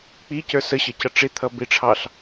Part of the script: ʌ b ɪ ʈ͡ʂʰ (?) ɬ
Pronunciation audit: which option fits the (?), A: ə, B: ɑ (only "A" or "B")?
B